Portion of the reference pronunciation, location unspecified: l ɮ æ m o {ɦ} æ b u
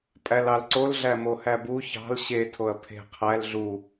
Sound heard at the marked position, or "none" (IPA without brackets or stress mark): h